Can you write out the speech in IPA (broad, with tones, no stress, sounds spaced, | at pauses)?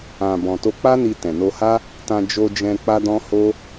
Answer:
ã˨ b ɔ̃˨ t o˧ k͡p a˦ n i˧ t ɛ̃˨ n o˧ h a˦ | t ã˧ d͡ʒ o˧ d͡ʒ ɛ̃˧ k͡p a˦ d ɔ̃˦ h o˦